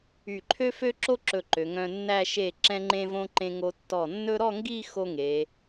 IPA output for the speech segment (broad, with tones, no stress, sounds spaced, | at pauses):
y˧˩ ǃʰ ø˥ f ø˥ ǁ o˥ ǁ ɵ˧˩ ǃ ø˩˧ ŋ œ̃˧ nː æ˥˧ ʃ e˧˩ ǁ ɛ̃˧ ŋ͡ǃ ẽ˧ v õ˧ ǃ ẽ˧ ŋ o˧ tː ɔ˧˩ nː ɵ˥ ɾ ɔ˥˧ ŋ ɡ i˥˧ x o˥ ŋ e˩˧